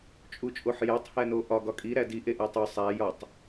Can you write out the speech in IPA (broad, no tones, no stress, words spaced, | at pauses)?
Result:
t͡ʃʼut͡ʃʼoħjætˤ hænoʔɒ ɡɒkʼi ɾædi ʔeʔætˤo sˤæ jɒtˤ